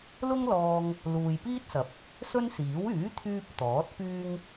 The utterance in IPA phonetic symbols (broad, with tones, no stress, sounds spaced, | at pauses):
l ʊ˥ ŋ l ɔː˧ ŋ | l uː˨ j p iː˥ t̚ s ɐ˨˥ p̚ | s ɵ˥ n s iː˨˥ w yː˨˥ t̪ʰ yː˧ p̚ t̪ ɔː˨˥ t̚ p yː˥ ŋ